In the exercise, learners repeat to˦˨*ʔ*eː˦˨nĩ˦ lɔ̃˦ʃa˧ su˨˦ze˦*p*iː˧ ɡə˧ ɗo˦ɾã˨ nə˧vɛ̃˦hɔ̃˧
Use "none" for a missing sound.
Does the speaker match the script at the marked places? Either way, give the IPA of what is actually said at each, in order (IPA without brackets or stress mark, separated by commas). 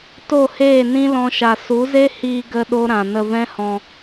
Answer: h, h